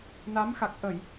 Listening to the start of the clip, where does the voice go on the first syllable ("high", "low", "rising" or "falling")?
rising